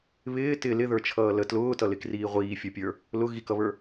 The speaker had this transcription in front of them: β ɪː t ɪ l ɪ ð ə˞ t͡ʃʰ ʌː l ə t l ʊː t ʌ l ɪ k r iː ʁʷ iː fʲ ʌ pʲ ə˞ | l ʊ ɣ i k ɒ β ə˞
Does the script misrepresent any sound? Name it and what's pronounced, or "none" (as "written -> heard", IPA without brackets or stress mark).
ɒ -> ʌ